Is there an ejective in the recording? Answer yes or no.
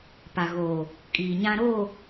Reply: yes